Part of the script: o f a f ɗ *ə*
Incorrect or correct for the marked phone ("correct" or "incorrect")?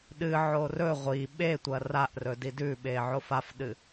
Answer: incorrect